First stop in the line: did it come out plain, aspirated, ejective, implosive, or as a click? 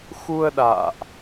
implosive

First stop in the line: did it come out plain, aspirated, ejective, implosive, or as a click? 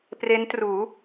plain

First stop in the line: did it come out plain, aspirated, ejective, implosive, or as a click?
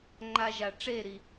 click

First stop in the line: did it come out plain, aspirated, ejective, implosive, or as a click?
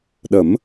implosive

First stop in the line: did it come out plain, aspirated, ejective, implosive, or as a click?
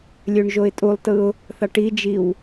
ejective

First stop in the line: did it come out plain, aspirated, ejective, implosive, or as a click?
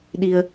implosive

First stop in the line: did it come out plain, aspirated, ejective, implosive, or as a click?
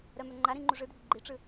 click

